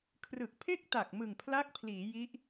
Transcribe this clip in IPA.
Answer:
kʰ r ɯ˨˩ k̚ pʰ e˥˩ k̚ t a˨˩ k̚ m ɯ˨˩ ŋ pʰ l a˦˥ k̚ pʰ l iː˩˦ j i˦˥ ʔ

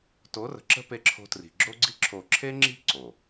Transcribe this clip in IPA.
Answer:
t o˨˦ r ə̤˨ ǁ ə̤˦ p e˦ ǁʰ o̤˦ t r i̤˨ ɡ͡ǁ o˦ ɡ͡ǀ i˦ ǁʰ o˨ ǁʰ e˦ ŋ͡ǁ i̤˦ ǀ o˨

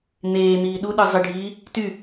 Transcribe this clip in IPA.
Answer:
n̪ eː n̪ iː ɗ u ɗ ə˞ zˤ ɪ ɖʱ iː | t y

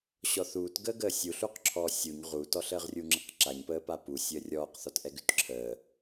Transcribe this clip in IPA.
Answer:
ɕ ɔ θ uː t ɡ əː ɡ əː sʲ u ɬ u q ǁʰ ɔː sʲ u ɲ ʁ u t ɔ ɬ əː ʁ rʲ u ŋ͡ǁ ə q ǁ a ɲ p əː p a p u sʲ əː rʲ ɔː q θ ɔ t ʔ ɛ ɡ ʉ t ǁʰ əː

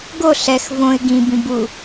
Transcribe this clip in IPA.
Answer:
ɡ o ɬ ɛ x v õ ɪ̯ ɡ ĩ b ĩ b u

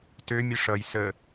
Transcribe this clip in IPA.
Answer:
t ø mʲ ə ʂ ʌ j s ə

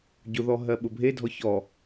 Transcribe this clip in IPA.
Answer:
ɟ ʊ ð ɔ ɦ ɜ ɓ ʊ bʱ e dʱ ɔ ç ɔ

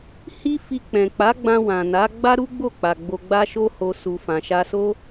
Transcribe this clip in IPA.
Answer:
h i˦ f i˧ k͡p ɛ̃˨ k͡p a˨˦ ɡ͡b ã˧ w ã˨ n a˨˦ ɡ͡b a˦ ɾ u˦ ɡ͡b o˦˨ k͡p a˨ ɡ͡b o˧ ɡ͡b a˦ ʃ o˦ h o˧ s u˨ f ã˨ ʃ a˧ s o˦

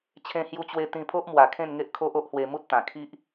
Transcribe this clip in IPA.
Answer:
t͡ɕʰ ẽ˧ h j u˧ t͡ɕ w e˧ t̪ ĩ˧ pʰ o˦ ʔ m w a˨˩ kʰ ẽ˥˧ n ŋ e˦ ʔ kʰ o˦ ʔ o˦ ʔ h w e˧ m u˦ t̚ t̪ ã˨˩ kʰ i˦ ʔ

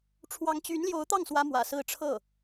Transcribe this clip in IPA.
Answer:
ʈ͡ʂʰ w ɑ˧˥ ŋ t͡ɕ y˧˥ n l j o˧˥ ʊ̯ t̪ ɑ˥˩ ŋ s w ä˥ m w ä̰˨˩ s ɹ̩˥ ʈ͡ʂʰ ɤ˥˩

